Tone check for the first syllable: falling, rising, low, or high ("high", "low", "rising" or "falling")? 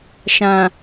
low